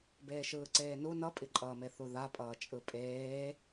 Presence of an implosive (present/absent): absent